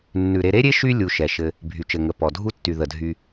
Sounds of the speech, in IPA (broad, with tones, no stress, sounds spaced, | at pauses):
nː ʉ˩ ɾ e˨ ɾ e˥ ɾʲ e˥ ʃ y˦ lʲ u˨ ʃ ɛ˩ ʃ ɘ˨ | bʱ y˩ t͡ʃ ɘ˩ ŋ ə˩ p ɔ˩ dʱ u˦ tː y˩ ð ə˩ dʱ y˨